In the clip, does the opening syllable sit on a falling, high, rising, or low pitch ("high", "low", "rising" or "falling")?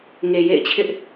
low